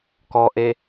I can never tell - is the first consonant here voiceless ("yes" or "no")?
yes